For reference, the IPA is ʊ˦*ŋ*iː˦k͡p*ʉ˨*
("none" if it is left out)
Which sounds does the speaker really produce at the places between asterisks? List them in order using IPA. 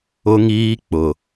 ŋ, ʊ˨

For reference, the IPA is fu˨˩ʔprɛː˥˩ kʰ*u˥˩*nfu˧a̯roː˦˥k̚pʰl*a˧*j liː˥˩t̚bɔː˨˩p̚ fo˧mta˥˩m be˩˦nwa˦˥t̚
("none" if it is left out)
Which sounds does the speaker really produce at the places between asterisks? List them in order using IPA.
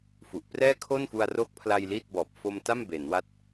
o˥˩, a˧

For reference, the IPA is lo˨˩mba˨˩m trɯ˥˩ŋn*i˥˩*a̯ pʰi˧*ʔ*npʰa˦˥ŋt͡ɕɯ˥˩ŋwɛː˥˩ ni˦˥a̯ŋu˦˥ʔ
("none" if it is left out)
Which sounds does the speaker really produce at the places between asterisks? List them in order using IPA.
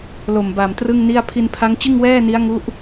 i˥˩, none

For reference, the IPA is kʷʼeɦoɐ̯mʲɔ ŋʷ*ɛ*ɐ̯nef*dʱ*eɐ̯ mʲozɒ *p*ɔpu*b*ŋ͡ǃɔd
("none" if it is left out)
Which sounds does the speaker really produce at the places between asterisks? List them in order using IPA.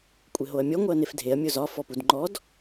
ɛ, dʱ, f, d

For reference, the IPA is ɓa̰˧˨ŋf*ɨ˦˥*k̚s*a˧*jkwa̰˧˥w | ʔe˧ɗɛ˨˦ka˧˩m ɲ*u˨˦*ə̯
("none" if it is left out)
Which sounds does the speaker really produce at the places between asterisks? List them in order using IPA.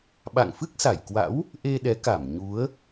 ɨ˦˥, a˧˩, u˨˦

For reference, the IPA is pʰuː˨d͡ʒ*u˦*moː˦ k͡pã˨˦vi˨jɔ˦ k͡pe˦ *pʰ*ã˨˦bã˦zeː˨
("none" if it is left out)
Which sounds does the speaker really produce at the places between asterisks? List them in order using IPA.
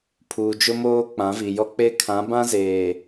ʊ˦, kʰ

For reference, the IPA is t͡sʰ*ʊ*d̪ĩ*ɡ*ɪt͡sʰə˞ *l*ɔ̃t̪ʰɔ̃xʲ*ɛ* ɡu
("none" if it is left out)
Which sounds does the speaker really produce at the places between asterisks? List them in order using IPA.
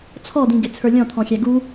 ɔ, ɡ, lʲ, æ

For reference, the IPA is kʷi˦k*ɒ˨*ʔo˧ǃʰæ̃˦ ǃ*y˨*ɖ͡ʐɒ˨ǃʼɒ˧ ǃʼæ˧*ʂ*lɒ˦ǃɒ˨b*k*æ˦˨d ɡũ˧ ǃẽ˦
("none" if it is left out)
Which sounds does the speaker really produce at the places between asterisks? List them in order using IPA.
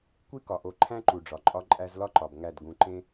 ɒ˨, u˨, z, ŋ

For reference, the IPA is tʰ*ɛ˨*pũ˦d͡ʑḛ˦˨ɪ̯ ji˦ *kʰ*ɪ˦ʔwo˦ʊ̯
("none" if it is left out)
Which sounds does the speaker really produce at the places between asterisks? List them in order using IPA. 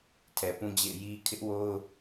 ɛ˨, kʰ

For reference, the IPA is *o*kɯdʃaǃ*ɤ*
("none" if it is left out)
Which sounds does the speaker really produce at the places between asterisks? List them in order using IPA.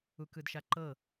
u, ɤ

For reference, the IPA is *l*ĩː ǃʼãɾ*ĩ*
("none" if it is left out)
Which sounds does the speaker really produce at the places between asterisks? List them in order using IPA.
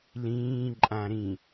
l, ĩ

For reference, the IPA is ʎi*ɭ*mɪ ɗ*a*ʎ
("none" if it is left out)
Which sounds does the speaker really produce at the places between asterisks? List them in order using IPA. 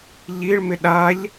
ɭ, a

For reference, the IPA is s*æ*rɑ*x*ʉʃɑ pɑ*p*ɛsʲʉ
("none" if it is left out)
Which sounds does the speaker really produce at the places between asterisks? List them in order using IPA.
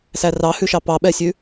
æ, h, ɓ

